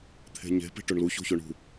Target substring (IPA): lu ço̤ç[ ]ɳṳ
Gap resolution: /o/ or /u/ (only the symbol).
o